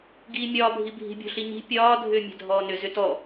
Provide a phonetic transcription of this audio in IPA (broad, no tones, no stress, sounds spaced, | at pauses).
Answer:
ɡ iː mʲ ɒː bʱ i bʱ i̤ bʲ o̤ ɬ i ɲ i̤ pʲ ɒː dʱ ʏː mʲ ɛ̤ dʱ ɔː n ʏ z ʏ t ɔ